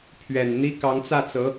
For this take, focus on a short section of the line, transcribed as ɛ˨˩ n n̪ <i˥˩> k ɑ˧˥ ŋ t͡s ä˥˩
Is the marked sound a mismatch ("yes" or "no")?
yes